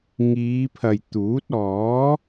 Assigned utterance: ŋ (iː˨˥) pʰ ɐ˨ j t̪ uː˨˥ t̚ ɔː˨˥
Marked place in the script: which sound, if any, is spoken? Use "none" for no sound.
iː˨˧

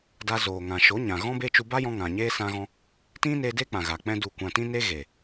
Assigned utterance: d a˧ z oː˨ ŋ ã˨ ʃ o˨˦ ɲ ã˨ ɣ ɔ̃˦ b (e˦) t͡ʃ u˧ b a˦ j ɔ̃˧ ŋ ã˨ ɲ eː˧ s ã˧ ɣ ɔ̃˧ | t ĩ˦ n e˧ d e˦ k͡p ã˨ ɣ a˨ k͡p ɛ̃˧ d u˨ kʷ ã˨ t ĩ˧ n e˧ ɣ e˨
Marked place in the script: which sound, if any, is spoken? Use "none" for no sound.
e˦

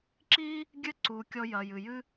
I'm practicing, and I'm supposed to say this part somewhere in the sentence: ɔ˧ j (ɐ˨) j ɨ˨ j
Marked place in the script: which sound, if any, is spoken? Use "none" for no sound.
ɐ˨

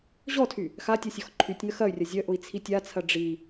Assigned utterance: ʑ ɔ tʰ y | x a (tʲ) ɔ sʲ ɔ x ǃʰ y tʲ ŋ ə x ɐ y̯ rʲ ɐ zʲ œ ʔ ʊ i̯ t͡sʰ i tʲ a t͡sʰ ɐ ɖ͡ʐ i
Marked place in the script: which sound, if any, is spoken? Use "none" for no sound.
tʲ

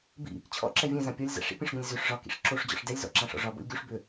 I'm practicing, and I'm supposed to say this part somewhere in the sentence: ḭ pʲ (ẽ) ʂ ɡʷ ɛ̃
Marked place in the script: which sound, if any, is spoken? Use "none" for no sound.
ẽ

